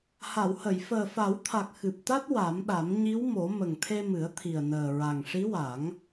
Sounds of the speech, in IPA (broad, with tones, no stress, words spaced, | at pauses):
ha˨˩˨whə˨˩˨j fəː˨˩fa˨˩˦wt̪ʰa˨˩k̚ xɨ˨˩p̚t̪a˦˥t̚ wa˨˩˦mɗa˨˩˦m ɲi˧˥wmo˨˩˦ mə˨˩ŋt̪ʰe˧mɨ˨˩˦ə̯ t̪ʰi˨˩ə̯nəː˨˩ɹa˨˩ŋ ʂi˧˥wa˨˩˦ŋ